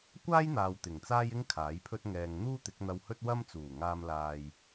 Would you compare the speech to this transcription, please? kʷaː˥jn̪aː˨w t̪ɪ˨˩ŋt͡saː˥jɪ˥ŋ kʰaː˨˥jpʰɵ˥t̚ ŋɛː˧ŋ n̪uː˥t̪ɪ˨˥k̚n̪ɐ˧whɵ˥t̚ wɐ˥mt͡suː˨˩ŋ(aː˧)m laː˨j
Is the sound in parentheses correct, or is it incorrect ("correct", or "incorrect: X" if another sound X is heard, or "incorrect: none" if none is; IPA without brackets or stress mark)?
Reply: correct